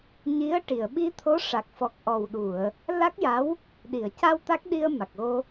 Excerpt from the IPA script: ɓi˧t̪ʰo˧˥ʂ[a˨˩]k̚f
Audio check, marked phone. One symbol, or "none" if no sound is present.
a˨˩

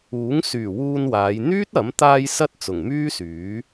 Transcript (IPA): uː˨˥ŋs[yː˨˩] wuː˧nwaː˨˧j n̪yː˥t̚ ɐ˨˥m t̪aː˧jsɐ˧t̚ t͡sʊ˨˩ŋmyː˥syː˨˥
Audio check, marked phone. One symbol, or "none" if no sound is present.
yː˨˩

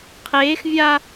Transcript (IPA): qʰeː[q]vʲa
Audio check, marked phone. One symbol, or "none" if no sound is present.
x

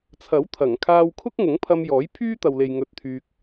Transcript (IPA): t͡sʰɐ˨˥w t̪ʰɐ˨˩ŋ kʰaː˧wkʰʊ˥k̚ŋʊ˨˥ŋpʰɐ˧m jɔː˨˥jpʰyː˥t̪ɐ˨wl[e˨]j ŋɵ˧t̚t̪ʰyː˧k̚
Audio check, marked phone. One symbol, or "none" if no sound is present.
e˨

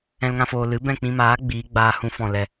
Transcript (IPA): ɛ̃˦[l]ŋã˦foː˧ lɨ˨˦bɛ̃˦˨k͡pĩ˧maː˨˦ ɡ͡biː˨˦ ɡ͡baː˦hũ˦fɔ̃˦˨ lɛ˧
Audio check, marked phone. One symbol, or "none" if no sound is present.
l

